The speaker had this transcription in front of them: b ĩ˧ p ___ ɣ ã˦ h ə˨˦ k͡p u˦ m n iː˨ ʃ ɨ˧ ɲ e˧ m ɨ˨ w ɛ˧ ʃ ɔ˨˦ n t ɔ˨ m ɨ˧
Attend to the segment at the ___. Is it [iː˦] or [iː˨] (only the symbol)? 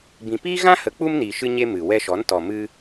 iː˦